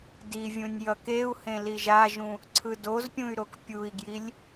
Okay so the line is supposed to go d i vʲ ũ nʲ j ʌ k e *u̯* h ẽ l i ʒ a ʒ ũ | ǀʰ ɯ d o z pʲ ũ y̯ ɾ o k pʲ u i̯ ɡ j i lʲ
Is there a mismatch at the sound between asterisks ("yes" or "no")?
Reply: no